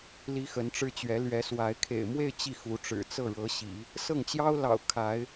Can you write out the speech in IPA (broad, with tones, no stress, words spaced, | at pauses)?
li˥xə˧˥nʈ͡ʂɻ̩˥t͡ɕɥɛ˧˥ lɥɛ˧˥swa˧˥ɪ̯ kʰḛ˨˩ɪ̯mwe˥˧ɪ̯ t͡ɕi˥˩xu˧˥ʈ͡ʂɻ̩˨˩ t͡sɤ˥˩ɻɤ˧˥ɕḭ˨˩˦ | sɤ˥˩ŋt͡ɕjɑ˥ʊ̯lɑ̰˨˩ʊ̯ kʰa˧˥ɪ̯